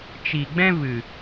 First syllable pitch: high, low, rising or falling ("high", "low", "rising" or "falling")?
low